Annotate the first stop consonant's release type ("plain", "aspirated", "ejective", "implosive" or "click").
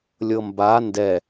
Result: plain